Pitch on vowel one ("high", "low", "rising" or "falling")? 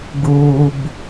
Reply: low